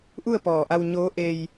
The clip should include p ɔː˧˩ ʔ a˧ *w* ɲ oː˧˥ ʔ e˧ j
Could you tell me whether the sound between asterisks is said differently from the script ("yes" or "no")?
no